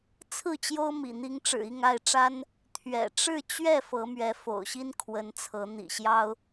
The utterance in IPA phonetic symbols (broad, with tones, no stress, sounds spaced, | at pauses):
t͡sʰ ɹ̩˥˨ t͡ɕ j o˦ ʊ̯ m ḭ˨˩ n̪ i˨˦ ŋ ʈ͡ʂ ɻ̩˨˩ i˥˨ ŋ a˥˨ ɪ̯ ʈ͡ʂ a˦ n | t̪ʰ ɥ ɛ̰˨˩ ʈ͡ʂ ɻ̩˥˨ t͡ɕ ɥ ɛ˥˨ f ɤ˨˦ m ɥ ɛ˨˦ f o̰˨˩ ʊ̯ ɕ i˦ n kʰ w ə˨˦ n t͡sʰ ɤ˨˦ n̪ ḭ˨˩ ɕ j ɑ˦ ʊ̯